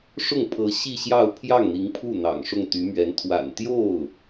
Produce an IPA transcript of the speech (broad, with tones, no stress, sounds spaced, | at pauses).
ʂ ʊ˥˩ ŋ pʰ ɤ˧˥ ɕ i˥˧ ɕ j ɑ˥˧ ʊ̯ pʰ j ɑ˥˩ ŋ n̪ i˧˥ ŋ pʰ u˥˩ n̪ ɑ̰˨˩ ŋ ʂ ʊ˥˩ ŋ t̪ y˧˥ m ɥ ɛ˧˥ n t̪ʰ w a̰˨˩ n t̪ j o˥˩ ʊ̯